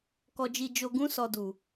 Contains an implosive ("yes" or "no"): no